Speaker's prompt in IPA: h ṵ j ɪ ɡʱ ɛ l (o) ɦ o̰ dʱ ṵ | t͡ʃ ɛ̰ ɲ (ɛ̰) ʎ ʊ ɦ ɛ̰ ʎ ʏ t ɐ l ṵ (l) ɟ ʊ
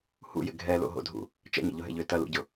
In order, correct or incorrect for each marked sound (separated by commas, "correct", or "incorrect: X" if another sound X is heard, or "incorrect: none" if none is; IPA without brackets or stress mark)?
incorrect: o̰, incorrect: ə̰, incorrect: none